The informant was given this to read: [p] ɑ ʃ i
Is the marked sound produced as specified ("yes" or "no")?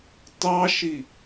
no